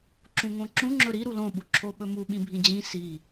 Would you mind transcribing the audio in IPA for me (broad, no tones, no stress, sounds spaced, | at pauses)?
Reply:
ǁ ũ ŋ õ ǁ ũ ŋ͡ǁ ɵ ɾ i ɾ u l õ ɓ u ǁʰ o ɓ ɵ m u ɓ ĩ bʱ ĩ d͡ʑ ĩ s i